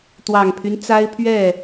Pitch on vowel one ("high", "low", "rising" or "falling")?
low